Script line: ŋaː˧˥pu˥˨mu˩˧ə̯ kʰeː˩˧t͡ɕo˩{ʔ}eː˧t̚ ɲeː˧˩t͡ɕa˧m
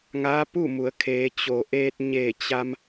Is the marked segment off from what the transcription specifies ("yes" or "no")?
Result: no